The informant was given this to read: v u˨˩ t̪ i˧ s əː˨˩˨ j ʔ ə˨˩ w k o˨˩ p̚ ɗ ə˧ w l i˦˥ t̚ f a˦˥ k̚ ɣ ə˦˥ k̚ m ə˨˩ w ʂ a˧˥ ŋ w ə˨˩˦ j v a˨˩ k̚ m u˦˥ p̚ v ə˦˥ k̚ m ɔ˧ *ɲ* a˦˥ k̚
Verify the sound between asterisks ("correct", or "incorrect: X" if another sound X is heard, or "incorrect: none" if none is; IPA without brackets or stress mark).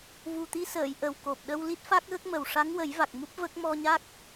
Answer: correct